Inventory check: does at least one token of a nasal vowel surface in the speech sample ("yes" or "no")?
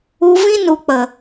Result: yes